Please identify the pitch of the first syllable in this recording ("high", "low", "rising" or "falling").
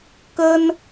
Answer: high